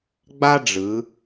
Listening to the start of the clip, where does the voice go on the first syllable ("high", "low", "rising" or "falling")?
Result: high